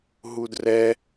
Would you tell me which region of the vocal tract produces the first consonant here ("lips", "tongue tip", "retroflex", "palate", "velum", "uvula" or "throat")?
throat